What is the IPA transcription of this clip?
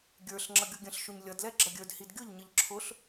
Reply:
ɡʲ ə˞ ɬ ŋ͡ǁ ʌ ɡʲ u ɡʲ ə̃ ɬ ʃ ʊ ɲ lʲ ʌ d l ɛ ɡ͡ǁ ʌ ɡʲ ə˞ d h i d ɡʲ ʊ ʎ ɲ ʌ ʎ ǁʰ ʊ ɬ

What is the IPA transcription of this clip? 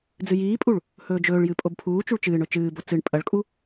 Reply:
d͡z ɨ j iː pʼ u ɭ | h ɵː d͡ʒ ɵː ɭ j ɨ pʼ o b pʰ uː t͡ʃ u ɭ t͡ʃ ɨː ɳ ɵ t͡ʃ ɨː b o t͡s ɨ ɳ pʼ ɐ ɭ kʼ u

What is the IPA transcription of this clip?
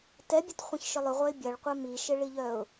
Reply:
t ɛ bʲ ə t χʷ ɐ̃ ç ʃ ʏ lˠ ʏ ʁʷ œ ɪ̯ bʲ ɐ ɭ qʷ ɛ m i ʃ ɪ ɭ i ʎ œ ʊ̯

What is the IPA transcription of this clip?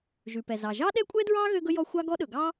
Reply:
ʒ ʉ˩ p ɛ˩ z ɑ˩ ʒ ɑ˥ ɗ ɛ˥ kʷʼ ɛ˥ d ɹ ɑ˥ ɣ ø˥ ɡ ɵ˥ j ɔ˥ xʷ ɑ˥ ɡ ɔ˥ ɗ ɵ˩ ɡ ɑ˥

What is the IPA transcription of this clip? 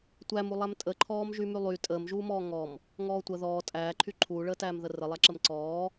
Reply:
tʷ æ m u lˠ æ m tʼ ə ǃʰ ɔː m ʒ y m y lˠ y tʼ əː m ʒ uː m ɔː ŋ ɔ m | ŋ ɔː tʷ ə ð ɔː tʼ æː ǃʰ y ǃʰ uː ɭ əː t æː m ð ə r ə lˠ æ ǁ ə m ǀ ɔː

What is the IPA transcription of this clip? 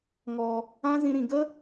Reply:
ŋ ɔ˨ | ã˦ z ĩ˧ ɾ ĩ˨ ɡ ə˦

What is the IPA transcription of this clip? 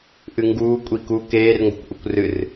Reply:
ʔ ɨ ŋ ɡ uː kʷʼ i k u k eː r ŋ ɡ ə kʷ ʔ u kʷ r ɨ r

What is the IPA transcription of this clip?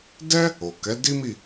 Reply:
d ɛ˦ | o˨ k ɛ˨˦ d i˦ m i˦˨

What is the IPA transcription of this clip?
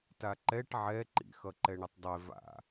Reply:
t a ǃ ɛ ʈ ʕ ɛ ǃ ḭ x ʌ ǃ ɛ ɳ ʌ tˤ dˤ e v a̰

